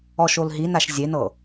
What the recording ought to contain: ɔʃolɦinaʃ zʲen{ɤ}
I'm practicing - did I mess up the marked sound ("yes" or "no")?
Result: no